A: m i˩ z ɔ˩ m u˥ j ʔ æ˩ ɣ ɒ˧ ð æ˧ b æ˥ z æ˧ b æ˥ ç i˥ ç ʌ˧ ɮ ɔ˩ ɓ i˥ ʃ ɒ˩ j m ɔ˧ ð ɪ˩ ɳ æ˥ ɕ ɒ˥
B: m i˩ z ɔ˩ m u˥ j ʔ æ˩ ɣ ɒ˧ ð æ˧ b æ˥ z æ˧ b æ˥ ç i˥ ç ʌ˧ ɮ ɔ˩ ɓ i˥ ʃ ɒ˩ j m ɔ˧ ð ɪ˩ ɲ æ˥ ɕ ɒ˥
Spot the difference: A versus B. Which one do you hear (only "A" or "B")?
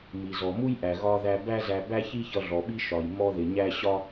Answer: B